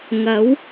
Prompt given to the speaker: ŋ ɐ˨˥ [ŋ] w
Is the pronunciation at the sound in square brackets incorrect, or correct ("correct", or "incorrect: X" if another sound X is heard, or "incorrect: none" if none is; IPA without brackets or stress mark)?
incorrect: none